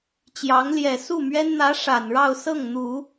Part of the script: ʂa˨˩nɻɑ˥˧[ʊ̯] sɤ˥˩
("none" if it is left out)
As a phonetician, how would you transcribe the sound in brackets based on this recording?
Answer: ʊ̯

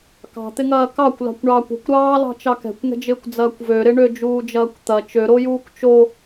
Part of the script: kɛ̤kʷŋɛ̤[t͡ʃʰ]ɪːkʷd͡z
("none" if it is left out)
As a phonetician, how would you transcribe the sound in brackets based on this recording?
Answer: d͡ʒ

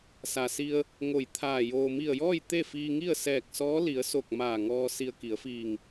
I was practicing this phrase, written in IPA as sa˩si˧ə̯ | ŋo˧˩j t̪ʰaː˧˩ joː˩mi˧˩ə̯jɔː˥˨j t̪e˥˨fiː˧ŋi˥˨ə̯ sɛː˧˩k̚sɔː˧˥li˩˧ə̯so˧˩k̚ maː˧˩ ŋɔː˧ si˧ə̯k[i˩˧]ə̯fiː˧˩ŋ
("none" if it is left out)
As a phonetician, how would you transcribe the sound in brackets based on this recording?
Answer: i˩˧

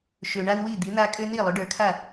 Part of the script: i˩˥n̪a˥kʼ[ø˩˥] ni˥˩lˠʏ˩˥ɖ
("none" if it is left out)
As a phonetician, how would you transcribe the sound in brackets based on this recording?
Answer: ø˥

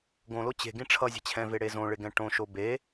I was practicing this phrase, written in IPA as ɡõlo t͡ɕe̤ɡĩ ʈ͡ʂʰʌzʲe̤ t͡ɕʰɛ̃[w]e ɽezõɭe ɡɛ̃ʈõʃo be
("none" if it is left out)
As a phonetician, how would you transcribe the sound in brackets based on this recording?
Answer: v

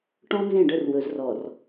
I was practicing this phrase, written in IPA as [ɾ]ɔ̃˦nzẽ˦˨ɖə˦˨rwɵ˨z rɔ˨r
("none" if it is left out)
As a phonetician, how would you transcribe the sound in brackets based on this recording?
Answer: ʈ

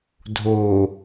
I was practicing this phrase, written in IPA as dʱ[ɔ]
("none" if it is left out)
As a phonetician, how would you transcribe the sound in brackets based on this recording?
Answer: o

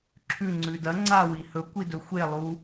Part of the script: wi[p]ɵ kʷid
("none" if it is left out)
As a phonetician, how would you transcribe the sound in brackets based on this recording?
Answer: h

